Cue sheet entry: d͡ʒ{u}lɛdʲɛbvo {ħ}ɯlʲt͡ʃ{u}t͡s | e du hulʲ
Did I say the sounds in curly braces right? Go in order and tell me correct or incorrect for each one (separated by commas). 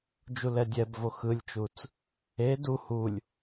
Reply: correct, incorrect, correct